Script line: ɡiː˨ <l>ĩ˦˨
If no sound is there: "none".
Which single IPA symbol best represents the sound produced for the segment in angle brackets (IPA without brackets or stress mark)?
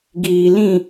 l